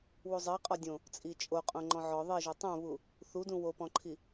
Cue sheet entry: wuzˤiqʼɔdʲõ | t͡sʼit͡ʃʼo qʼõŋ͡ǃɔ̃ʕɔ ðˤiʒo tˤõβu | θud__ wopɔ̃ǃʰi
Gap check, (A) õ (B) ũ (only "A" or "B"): B